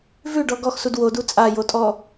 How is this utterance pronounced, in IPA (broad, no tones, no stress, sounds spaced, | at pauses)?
v ʉ ɖ ɔ ɡ ɔ x s u d w o d u t͡sʼ a j o tʼ ɔ